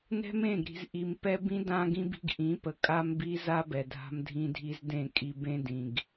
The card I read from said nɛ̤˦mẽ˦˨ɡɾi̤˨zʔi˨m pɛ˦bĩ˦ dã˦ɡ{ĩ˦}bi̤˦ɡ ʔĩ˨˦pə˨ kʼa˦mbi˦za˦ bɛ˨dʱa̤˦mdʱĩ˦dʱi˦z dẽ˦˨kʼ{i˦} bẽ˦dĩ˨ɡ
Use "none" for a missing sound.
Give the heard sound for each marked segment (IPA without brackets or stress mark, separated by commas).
ĩ˦, i˦